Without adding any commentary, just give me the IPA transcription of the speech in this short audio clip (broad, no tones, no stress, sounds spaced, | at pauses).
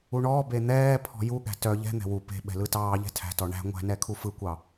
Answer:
u ɳ ɔː b e n̪ ɛː pʰ ɔ̤ j u ɠ æ̤ t œ ʎ ɛ̤ n̪ ɛ̤ w u p e̤ ɓ ɛ̤ l ɯ t ɑː ʎ ɛ̤ tʰ æ̤ t ɔ ɳ æ̤ ŋʷ æ̤ n ɛ kʰ u f ɯ kʷ ɑ